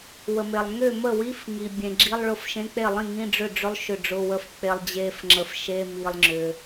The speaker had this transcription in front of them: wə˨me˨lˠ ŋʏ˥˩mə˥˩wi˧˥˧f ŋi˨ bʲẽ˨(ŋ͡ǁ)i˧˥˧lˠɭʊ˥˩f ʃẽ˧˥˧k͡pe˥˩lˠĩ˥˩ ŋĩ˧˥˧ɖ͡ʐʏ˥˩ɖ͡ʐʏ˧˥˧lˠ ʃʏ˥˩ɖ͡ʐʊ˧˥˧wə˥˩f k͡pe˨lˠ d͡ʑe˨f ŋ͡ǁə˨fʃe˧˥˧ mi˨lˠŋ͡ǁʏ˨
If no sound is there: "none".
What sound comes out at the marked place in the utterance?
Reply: ɡ͡ǁ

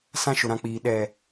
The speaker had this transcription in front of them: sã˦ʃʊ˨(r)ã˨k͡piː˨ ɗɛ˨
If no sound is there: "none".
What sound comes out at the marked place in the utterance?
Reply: ɾ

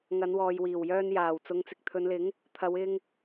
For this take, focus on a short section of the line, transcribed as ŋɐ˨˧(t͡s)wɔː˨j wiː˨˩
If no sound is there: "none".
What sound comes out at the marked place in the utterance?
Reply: n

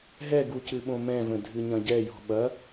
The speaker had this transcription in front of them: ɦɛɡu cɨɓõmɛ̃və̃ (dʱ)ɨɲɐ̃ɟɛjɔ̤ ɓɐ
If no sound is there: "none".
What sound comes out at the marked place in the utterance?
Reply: dʱ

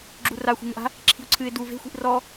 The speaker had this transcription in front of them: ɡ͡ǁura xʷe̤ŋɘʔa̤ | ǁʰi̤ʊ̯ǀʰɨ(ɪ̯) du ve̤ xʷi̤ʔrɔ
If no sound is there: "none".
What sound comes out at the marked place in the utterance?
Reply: ɪ̯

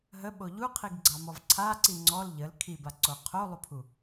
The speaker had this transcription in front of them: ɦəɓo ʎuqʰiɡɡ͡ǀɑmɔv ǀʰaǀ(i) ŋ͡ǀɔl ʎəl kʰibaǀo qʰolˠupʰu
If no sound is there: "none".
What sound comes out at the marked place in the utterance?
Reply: i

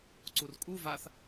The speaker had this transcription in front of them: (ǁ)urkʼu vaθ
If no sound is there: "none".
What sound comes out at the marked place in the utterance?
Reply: ǀ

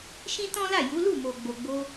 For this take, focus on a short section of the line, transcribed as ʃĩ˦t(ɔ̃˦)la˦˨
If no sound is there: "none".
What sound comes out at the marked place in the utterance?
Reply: ɔ̃˦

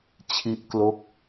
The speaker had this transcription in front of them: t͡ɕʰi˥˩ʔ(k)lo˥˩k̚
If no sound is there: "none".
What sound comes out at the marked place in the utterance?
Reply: k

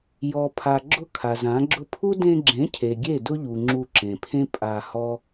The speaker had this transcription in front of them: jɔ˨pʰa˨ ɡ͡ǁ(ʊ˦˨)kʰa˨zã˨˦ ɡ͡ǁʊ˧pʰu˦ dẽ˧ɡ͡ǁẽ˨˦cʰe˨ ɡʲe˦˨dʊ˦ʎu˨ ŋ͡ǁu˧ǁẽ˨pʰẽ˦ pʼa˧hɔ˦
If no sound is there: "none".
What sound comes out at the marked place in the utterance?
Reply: ʊ˦˨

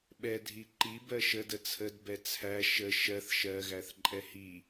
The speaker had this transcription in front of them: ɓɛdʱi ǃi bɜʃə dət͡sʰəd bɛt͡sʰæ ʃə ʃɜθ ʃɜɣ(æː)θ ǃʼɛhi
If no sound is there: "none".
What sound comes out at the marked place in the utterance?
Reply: æ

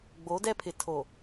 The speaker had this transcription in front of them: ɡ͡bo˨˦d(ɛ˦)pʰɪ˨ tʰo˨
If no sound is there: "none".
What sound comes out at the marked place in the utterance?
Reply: ɛ˦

